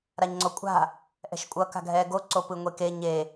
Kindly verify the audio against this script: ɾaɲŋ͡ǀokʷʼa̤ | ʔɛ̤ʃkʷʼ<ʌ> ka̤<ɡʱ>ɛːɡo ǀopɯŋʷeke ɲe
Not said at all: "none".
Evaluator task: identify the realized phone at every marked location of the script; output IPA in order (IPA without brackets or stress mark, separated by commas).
ʌ, ɡʱ